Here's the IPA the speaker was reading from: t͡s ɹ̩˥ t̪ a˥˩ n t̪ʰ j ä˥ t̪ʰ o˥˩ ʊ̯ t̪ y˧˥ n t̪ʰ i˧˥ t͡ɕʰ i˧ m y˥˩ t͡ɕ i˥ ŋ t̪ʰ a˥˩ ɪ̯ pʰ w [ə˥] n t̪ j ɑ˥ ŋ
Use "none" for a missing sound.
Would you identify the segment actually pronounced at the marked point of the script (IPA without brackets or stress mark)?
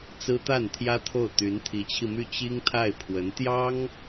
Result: ə˧˥